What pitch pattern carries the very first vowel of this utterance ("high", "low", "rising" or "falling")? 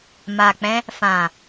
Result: low